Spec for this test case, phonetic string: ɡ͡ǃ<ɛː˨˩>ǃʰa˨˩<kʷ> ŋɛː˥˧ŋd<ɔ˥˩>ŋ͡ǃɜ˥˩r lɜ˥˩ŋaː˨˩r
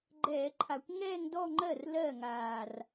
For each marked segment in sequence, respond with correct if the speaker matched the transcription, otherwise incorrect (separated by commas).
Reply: incorrect, correct, incorrect